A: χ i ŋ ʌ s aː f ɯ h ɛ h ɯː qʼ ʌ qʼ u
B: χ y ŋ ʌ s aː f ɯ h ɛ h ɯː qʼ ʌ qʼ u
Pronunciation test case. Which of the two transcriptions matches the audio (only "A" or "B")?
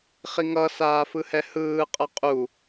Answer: A